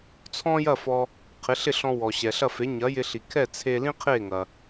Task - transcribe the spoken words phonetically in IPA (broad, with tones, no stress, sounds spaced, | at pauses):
t͡sʰ ɔ̃˥ j ɐ˥˩ f ɔ˧ | qʰ ɪ˩˥ ɬ ɪ˥˩ ɬ ɔ̃˧ w ɔ˩ ɕ ɛ˩ ɬ ɐ˥˩ f e˩˥ ɲ ɐ˩˥ j ɪ˧ ɬ i˩ kʰ ɛ˥˩ t͡sʰ e˧ l ĩ˥ qʰ e˥˩ ŋ ɐ˩